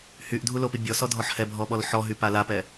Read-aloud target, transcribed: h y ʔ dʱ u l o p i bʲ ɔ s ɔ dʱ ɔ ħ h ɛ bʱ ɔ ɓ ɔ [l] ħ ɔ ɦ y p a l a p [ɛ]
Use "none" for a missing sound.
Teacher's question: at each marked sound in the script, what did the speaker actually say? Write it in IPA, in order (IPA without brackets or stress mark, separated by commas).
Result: l, ɛ